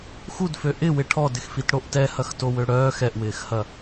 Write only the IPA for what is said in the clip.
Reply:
xudfø ʔɪwɪ ʈʰɔdɪxfitɽoʔ tɛhɐxtowø ɽœːx ɛʔwɪːxhɐ

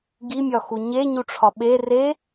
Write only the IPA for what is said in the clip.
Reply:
ɡimʲɒ xuɲeɲuʈ͡ʂʰɒ ɓe re

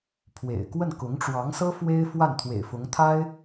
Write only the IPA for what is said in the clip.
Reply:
pʰwḛ˨˩ɪ̯kwə˥˩n kʊ˧˥ŋʈ͡ʂwɑ˧˥ŋsɤ˥ fwe˥ɪ̯ fwa˥˩nt̪ʰwḛ˨˩ɪ̯fʊ˧˥ŋ t̪ʰa˥ɪ̯

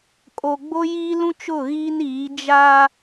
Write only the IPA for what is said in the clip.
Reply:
kʼo˨ɡ͡bo˦jiː˦lũ˦ t͡ʃʊ˦˨ɣiː˦n iː˨˦ d͡ʒa˦

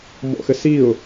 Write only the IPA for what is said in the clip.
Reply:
mɔ̰xɘsiʊ̯

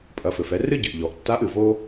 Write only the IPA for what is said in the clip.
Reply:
pʼɐ˩˧fɘ˩fɛ˩˧ rɨ˥ɟɨ˩ʔ ʎɔ˩ʔtːa˧˥ʔɨ˩ vo˥

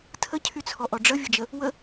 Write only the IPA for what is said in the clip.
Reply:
tʰəcʰyt͡sʰɔʔɔ ɖ͡ʐəvʲəd͡ʒə | wə

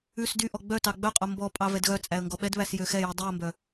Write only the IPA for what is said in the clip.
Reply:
ʉs dyʔɔ ɡ͡bœtɑ ɡ͡bœqʼo mbɔpʼɑ vɛdɣœt͡sʼæə̯ ŋɡɔɓɛdβæs jøxɛji dˤiə̯mbœ

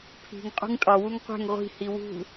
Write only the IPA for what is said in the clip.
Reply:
pʰi̤ŋ qʼṳŋtʼɒwuŋ qʷɛ̤ŋ ʁʷi̤hi wṳ

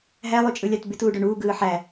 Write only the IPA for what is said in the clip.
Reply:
ɦælˠy t͡ʃʼɯlʲɑtbyt uːɖøɳuːɡɯː ħæ

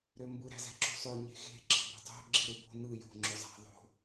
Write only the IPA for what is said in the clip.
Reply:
ɾømbɯ ɾæ̤zæ̤ǁṳsˤø ɲe̤xe̤ ɡ͡ǁɑ̤bo̤tˤo̤ ɡ͡ǁiɾɯbo̤ nɯ jo̤ ŋ͡ǁøzˤæ̤ ðˤo̤

